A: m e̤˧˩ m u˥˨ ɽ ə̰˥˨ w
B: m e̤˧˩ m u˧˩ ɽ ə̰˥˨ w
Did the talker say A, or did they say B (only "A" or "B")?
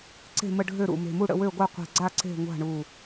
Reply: A